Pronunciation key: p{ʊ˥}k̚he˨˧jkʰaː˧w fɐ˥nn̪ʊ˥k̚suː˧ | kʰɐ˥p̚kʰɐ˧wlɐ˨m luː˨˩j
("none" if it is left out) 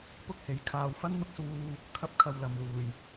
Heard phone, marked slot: ʊ˥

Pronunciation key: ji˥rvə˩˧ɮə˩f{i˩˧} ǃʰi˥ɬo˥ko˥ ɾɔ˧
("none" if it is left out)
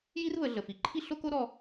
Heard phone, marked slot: i˩˧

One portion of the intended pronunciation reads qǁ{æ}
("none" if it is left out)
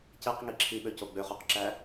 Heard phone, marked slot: æ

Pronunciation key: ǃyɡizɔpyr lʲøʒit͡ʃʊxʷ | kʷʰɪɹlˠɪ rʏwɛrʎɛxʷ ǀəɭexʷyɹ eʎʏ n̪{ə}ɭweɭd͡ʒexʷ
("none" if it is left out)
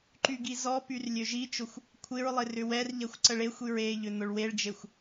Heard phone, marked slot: ʊ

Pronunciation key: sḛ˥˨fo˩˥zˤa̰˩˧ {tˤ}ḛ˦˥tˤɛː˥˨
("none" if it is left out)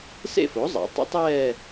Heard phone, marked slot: tˤ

